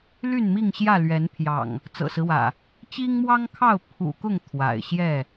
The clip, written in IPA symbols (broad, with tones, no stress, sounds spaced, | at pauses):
l y˥˨ n m i˥˨ ŋ ɕ j ä˥˨ l ɥ ɛ˨˦ n pʰ j ɑ̰˨˩ ŋ | t͡s ɤ̰˨˩ s ɹ̩˦ w ä̰˨˩ | t͡ɕ i˦ ŋ m w ɑ˦ ŋ kʰ ɑ˥˨ ʊ̯ pʰ ṵ˨˩ k ʊ˥˨ ŋ t̪ʰ w a̰˨˩ ɪ̯ ɕ j ɛ˥˨